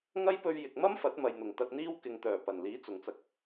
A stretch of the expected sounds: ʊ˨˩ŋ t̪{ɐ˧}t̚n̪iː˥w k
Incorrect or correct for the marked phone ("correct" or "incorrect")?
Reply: correct